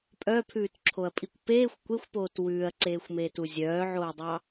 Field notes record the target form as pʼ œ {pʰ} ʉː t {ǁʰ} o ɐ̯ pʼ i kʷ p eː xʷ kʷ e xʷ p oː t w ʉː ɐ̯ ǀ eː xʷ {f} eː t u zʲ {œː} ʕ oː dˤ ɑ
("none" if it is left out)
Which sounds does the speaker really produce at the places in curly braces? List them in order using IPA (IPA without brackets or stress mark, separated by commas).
pʰ, ǁʰ, m, œː